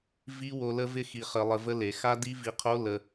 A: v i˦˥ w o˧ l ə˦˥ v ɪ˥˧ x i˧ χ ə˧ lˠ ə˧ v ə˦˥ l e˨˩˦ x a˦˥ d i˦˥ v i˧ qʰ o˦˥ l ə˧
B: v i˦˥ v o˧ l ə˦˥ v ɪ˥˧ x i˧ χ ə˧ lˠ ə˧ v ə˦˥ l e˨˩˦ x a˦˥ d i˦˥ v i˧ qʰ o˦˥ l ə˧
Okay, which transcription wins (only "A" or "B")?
A